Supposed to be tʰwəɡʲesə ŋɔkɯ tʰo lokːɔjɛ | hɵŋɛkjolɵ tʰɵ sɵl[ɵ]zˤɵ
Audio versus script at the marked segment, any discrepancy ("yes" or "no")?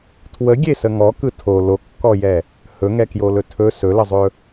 yes